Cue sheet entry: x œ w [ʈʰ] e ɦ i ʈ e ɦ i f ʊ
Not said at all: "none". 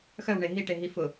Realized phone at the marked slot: ɳ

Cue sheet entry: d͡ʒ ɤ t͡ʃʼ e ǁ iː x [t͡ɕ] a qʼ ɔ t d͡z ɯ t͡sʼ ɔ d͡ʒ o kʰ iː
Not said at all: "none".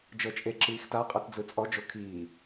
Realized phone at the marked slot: t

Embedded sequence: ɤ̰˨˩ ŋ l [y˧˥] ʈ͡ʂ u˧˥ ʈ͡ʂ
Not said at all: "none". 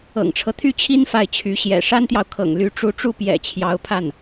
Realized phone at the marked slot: y˧˥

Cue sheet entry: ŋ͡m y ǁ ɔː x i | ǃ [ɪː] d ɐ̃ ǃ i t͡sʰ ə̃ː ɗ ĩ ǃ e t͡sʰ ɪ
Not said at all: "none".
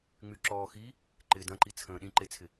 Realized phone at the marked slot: ɪː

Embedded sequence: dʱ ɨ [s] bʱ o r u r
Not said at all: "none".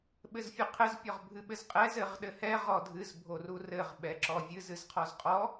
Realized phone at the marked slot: z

